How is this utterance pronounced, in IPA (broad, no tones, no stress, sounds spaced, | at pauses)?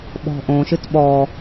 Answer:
ɓ ɔ̤ ʔ õ ʃ ɨ t ɓ ɔ